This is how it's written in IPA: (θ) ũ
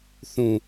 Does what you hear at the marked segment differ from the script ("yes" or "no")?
no